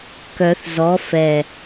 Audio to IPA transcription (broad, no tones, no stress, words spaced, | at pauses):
kœθ zɔ fɛ